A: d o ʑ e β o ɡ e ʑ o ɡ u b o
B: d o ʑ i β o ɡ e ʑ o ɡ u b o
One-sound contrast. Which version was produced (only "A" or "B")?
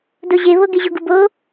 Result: A